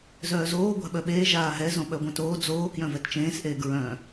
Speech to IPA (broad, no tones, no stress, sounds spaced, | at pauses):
z œː z oː ɡʷ a̤ ɓ œ ɓ eː ʒ aː ɦ ɛ z õ ɓ œ ɡʷ œ̃ t oː d͡z oː k j œ̃ v ɛ t t͡ʃ ẽː s ʔ eː ɡ ɹ œ̃